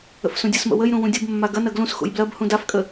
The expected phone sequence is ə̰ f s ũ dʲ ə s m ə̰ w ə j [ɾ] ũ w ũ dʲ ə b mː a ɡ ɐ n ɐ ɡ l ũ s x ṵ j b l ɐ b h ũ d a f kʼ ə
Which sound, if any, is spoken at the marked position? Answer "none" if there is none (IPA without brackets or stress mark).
ɾ